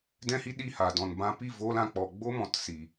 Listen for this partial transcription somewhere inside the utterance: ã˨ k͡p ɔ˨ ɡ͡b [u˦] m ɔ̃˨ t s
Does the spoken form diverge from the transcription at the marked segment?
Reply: yes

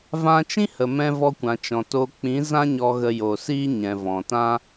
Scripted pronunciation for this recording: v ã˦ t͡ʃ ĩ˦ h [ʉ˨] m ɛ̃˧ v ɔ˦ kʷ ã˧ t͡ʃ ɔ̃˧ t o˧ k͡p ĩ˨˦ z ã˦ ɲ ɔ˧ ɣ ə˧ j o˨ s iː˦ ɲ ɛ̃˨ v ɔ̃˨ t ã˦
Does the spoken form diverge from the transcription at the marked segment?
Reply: yes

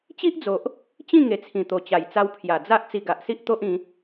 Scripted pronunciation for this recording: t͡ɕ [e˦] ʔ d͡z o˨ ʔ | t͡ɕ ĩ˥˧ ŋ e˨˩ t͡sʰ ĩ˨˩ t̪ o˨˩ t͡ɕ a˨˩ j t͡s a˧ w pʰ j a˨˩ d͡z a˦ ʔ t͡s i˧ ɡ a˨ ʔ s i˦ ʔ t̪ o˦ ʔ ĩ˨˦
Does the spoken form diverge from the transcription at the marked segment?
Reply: yes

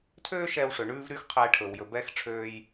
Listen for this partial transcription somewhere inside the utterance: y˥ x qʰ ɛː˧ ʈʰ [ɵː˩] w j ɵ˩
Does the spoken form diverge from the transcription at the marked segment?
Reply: no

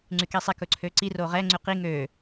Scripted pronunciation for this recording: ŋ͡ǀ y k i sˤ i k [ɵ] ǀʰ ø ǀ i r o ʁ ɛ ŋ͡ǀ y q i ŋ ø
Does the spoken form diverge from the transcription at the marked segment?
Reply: no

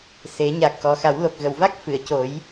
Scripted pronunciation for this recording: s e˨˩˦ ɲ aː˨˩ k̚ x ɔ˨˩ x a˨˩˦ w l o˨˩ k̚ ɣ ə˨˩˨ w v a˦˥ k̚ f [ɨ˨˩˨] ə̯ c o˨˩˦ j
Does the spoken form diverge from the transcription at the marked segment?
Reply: no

